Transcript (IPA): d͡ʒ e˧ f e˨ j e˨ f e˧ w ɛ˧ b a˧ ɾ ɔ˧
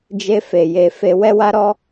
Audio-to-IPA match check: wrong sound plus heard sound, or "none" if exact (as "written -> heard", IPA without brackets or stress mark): b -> w